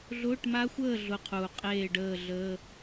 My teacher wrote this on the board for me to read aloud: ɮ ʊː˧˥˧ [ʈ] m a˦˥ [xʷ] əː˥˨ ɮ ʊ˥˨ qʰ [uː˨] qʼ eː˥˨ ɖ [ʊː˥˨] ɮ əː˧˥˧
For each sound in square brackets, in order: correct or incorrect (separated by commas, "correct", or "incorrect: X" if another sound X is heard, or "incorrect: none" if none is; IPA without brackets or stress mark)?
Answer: correct, correct, correct, incorrect: əː˥˨